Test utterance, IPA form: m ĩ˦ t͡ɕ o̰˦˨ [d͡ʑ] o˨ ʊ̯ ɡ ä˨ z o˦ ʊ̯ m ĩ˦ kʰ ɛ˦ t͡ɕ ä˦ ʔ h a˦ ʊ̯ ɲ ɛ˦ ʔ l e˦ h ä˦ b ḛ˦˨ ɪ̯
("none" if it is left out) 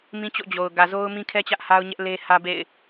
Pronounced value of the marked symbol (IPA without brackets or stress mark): d͡ʑ